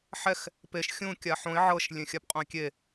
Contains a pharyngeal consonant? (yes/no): yes